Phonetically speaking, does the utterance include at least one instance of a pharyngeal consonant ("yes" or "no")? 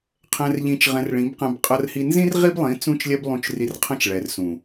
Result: no